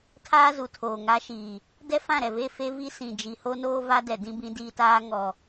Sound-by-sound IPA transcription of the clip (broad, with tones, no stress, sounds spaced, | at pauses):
tʰ aː˦ z u˨ tʰ oː˨ ŋ a˦ ʃ iː˨ | d ɛ˦ f ã˦˨ ɾ ɛ˨ v e˦˨ f e˦ v i˦ s ĩ˨ d͡ʒ i˨ h o˦ n oː˦ v a˦ d ɛ˨ d ĩ˦ b ĩ˦ d iː˦ t aː˦ ŋ ɔ˨